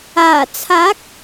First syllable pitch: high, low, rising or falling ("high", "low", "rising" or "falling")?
low